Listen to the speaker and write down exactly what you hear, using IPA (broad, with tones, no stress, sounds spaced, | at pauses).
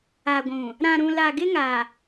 a˨ ɡʷ ũ˨ | ɾ ã˨ ɾ ũ˨ l a˨ ɡ ɪ˦ ŋ a˨